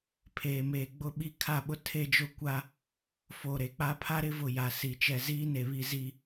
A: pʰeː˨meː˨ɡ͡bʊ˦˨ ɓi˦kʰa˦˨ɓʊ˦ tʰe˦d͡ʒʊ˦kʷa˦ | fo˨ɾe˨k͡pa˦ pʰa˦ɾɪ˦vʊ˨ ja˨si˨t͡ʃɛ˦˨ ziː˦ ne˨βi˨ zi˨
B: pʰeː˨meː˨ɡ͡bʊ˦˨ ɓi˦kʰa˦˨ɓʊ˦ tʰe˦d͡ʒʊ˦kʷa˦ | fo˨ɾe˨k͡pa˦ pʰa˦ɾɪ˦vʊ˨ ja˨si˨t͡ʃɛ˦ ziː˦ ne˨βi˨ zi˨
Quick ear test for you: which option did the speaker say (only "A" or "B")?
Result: A